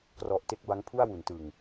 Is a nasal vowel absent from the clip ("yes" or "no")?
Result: yes